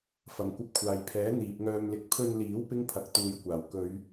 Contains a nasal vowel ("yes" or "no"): no